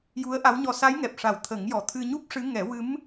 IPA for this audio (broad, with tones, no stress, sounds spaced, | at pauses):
j u˧˥ ə̯ ʔ a˧˥ w ɲ ɔ˧ s a˧˥ j ŋ ɛ˨˩ p̚ ʂ a˨˩ w t̪ʰ ə˨˩˦ ŋ j ɔ˨˩ t̪ʰ ɨ˧ ɲ u˦˥ p̚ ʂ ɨ˧˥ ŋ ɛ˨˩˦ w ɨ˧˥ m